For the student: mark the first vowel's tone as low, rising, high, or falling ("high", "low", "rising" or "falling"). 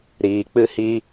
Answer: low